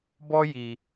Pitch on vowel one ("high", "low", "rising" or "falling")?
high